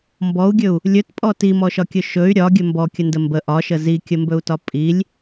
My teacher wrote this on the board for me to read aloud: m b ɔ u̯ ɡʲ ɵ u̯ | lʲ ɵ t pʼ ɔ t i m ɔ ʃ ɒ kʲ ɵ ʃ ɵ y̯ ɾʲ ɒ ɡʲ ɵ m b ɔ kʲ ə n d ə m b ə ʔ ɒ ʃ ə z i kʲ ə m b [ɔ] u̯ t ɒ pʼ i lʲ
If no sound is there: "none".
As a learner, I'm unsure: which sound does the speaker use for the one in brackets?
ɵ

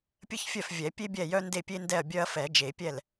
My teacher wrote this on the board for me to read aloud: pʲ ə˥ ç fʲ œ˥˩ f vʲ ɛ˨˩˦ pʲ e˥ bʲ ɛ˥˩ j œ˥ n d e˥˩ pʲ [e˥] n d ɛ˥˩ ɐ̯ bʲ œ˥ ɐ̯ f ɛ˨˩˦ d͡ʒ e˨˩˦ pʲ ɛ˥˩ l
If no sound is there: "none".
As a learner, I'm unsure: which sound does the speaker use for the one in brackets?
e˥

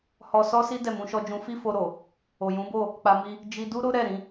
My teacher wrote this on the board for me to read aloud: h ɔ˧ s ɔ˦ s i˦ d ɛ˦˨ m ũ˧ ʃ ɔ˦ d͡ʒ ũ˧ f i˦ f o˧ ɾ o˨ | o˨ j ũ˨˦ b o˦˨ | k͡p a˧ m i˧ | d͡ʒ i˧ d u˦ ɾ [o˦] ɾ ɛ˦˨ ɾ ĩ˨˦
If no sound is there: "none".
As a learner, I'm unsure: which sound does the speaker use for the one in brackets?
o˦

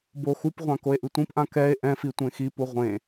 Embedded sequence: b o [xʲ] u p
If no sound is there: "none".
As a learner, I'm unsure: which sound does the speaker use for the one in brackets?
x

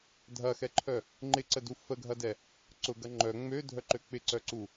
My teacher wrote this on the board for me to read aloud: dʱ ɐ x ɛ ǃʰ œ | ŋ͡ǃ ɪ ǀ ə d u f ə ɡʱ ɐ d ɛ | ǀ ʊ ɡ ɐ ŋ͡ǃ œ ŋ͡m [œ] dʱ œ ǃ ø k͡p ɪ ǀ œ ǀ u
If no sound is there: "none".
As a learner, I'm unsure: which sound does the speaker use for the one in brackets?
ø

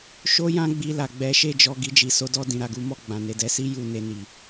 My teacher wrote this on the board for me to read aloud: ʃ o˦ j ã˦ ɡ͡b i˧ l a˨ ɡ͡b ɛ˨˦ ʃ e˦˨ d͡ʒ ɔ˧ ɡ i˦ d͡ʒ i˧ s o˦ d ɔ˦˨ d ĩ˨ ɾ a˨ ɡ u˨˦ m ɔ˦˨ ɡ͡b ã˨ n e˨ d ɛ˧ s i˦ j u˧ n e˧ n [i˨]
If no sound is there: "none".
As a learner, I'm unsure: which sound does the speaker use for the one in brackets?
i˨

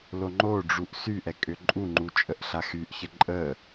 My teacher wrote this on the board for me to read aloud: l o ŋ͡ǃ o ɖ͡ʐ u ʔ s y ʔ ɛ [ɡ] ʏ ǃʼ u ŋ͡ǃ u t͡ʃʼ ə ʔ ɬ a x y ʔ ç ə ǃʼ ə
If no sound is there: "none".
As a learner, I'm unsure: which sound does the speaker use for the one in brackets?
kʼ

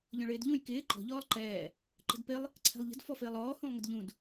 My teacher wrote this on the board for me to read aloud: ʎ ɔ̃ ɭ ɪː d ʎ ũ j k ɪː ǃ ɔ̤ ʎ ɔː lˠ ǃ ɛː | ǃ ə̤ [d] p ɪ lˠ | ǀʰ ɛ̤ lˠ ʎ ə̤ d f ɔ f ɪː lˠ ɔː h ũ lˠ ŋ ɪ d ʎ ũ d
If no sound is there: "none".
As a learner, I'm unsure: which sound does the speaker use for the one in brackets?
d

